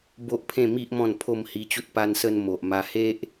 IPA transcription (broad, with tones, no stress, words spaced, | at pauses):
bo˦ʔpʰẽ˥˧mi˦ʔ mɔ̃˥˧npʰo˥˧mhi˧t͡ɕu˦t̚ pa˧nsə˧n mo˨ʔma˧ he˦ʔ